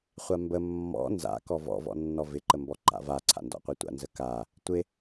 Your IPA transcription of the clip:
χʷambə mːɔ̰ nza̰ kɔvɔ̰ vɔ̰nːɔvɪ ǃəmbɔǃa̰va ǀʰa̰ndɔ̰qʷitʷa̰ nzəka | tʷɪ

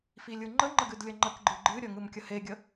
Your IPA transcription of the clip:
filʲɯŋ͡ǃəŋ͡ǃə ɡɨdlʲəŋ͡ǃəkɡ͡ǃɯ ɡ͡ǃɨɾʲə ŋɯmkʲəheɡʲə

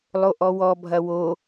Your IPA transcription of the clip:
lˠoʔɔwɔ bʱɐwo

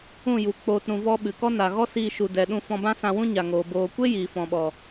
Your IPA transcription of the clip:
ũ˦˨ju˨ k͡poː˧t ɾũ˧ vɔ˧ ɓɨ˨kɔ˦ na˨ɣɔ˦ siː˧ʃu˨dɛ˨ɗũ˧ fɔ̃˧bã˦sã˧wũ˦ ɲa˨ŋoː˨ boː˨kʷe˦ jiː˨ fɔ̃˨ɓɔ˨

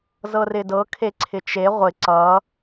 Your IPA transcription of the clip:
zɤrɪdɤ kʰeǀʰɪt͡ʃe ʁʷɪ ǀʌ

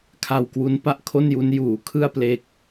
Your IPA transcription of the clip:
kʰa˧wkwu˦˥n pa˦˥ʔ kʰo˥˩nju˦˥n juː˩˦kʰɯ˥˩a̯ple˦˥k̚

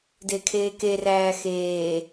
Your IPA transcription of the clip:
dekʰeːke ræːxeː

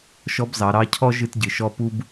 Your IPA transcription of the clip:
ʃɔ˧˥bzɑ˩˧ɾɑ˧˥cʰɔ˥ ʒɨ˧tɟɨ˩ʃɔ˧˥ pu˥b

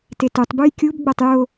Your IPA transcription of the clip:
tetutˤ bujkʲub ɡ͡botˤjo

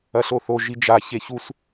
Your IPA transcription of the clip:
ɐɬoθo ʒid͡ʒa çeçus

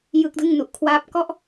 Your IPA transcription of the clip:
jɯ˦˥k̚dɯ˥˩ŋnu˨˩ʔ kʰwaː˦˥p̚ kɔ˥˩ʔ

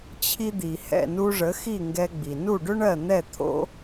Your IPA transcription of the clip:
t͡ɕʰi˧d̪i˩ hɛ̰˥˩nu˧ʐə˩˥ xi˥˩ŋɡɛ˧ɡ͡bi˩ nu˥˩ɖʏ˥ɳɜ˥˩ n̪ɛ˥˩t̪ʰo̰˥

